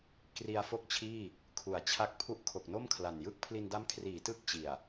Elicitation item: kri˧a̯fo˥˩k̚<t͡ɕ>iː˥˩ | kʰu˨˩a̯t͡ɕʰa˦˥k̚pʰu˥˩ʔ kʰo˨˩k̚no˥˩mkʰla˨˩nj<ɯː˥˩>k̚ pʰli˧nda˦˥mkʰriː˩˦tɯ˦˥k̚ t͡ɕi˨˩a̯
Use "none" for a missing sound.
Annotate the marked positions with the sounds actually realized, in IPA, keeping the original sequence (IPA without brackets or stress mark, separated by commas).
t͡ɕʰ, ɯ˥˩